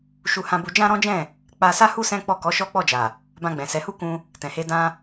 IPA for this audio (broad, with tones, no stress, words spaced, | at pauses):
ʃu˦hã˦bu˦ d͡ʒã˦ɾɔ̃˦d͡ʒɛ̃˦˨ | k͡pa˧sa˦ hu˦ sɛ̃˦ k͡pɔ˦˨ kɔ˨˦ʃɔ˦k͡pɔ˦˨d͡ʒa˨ | bã˧ɡ͡bɛ̃˨sɛ˨˦hu˦ kũ˧ | tɛ̃˨he˧ dã˧